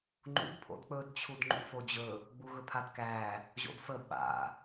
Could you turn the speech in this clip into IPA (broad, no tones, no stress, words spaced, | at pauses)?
ŋ͡ǃṵd pʰo̰dk͡pɵd t͡ɕʰudŋ͡ǃṵfod͡ʑɵ | ɡ͡buɣɵpʰadkæ | ʑo̰dfə ɓa̰